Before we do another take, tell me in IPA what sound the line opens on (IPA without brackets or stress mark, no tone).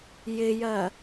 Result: j